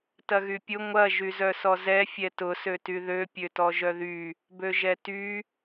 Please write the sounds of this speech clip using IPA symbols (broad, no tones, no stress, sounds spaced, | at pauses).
t ɐ ɣ y pʲ ʊ ŋʷ ɐ ʒ y z œ s ɔ z ɛ fʲ ɛ t ʊ s ø t y ð ø pʲ ø t ɔ ʒ œ ð y | b ø ʒ ɛ t y